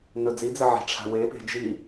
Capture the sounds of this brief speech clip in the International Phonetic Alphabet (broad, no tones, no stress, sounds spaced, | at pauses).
n ɵ d͡z i d͡z ə ʕ e̤ ʈ͡ʂʰ a̤ w e p e̤ d͡ʒ i